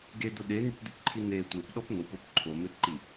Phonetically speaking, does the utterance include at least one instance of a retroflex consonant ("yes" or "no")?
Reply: no